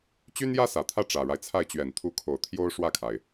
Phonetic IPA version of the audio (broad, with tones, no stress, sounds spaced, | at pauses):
t͡ɕ y˥ n j ä˥ s ä˨˩ t̪ʰ ä˥˩ ʈ͡ʂ ä˨˩ ɻ a˦ ɪ̯ t͡sʰ a˥˩ ɪ̯ t͡ɕ ɥ ɛ˨˩ n t̪ʰ u˧˥ kʰ o˨˩ ʊ̯ t̪ʰ j o˥ ʊ̯ ʂ w ä˥˩ kʰ a˩ ɪ̯